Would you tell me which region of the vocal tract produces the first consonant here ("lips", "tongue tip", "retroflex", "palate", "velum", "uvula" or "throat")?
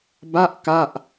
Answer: lips